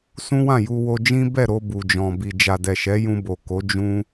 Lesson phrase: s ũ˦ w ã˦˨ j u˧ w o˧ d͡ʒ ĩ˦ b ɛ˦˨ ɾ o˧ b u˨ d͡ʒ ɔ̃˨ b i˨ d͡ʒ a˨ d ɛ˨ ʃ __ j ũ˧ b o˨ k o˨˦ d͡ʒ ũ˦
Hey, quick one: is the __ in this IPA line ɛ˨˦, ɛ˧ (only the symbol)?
ɛ˨˦